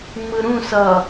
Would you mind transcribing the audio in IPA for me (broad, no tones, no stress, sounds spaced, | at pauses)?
ŋ͡m ɯ ɾ ũ s ʌ